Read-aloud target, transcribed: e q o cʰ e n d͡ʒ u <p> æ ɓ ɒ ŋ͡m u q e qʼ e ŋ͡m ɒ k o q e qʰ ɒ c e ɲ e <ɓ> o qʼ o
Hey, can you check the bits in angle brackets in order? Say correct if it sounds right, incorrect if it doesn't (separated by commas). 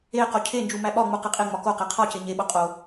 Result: incorrect, correct